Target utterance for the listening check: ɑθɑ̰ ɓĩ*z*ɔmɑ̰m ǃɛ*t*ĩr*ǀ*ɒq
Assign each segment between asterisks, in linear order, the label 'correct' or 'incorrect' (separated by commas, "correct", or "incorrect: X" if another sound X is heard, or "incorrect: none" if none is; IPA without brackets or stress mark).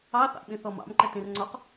incorrect: θ, correct, incorrect: ŋ͡ǀ